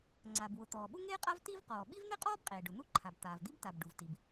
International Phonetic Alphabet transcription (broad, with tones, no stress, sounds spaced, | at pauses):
ŋ͡ǀ a˩ b w ʊ˩ t̪ ɔː˩ ɓ u˥ ŋ eː˥ qʼ a˥ v t i˥ v q ɔː˩ ɓ i˥ v n̪ e˥ qʼ ɔː˥ b qʼ eː˩ ɖ ʊ˩ n̪ u˥ ǃʰ a˩ b t̪ aː˩ v d̪ i˥ b t a˩ b ɖ u˩ v t i˩ b